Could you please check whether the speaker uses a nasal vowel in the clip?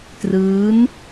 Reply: no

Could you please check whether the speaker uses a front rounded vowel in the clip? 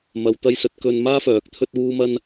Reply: yes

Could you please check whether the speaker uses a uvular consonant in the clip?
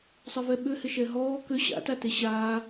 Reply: no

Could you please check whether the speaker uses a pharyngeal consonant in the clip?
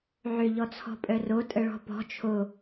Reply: yes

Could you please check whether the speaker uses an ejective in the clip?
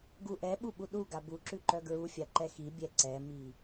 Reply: no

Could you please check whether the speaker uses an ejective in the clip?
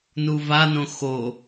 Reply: no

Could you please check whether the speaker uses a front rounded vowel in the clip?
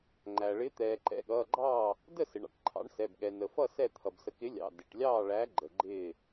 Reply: no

